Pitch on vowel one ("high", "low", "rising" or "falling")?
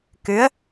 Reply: rising